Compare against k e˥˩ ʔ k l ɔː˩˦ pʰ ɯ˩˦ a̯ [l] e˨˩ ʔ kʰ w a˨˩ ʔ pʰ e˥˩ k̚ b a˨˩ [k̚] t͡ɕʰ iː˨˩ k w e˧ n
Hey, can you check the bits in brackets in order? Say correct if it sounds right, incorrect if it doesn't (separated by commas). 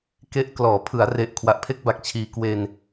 incorrect, correct